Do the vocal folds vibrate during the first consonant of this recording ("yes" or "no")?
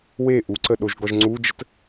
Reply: yes